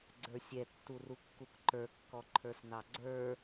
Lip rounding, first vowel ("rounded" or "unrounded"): unrounded